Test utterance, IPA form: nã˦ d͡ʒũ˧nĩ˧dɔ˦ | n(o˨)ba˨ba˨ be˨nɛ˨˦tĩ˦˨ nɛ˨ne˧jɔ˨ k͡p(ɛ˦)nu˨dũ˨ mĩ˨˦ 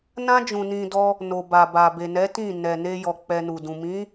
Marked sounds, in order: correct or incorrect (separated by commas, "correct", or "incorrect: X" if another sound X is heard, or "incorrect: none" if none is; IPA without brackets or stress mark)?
correct, incorrect: ɛ˧